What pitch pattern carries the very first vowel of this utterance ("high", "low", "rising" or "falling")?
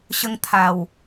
high